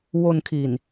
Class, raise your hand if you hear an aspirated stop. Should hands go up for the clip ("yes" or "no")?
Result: yes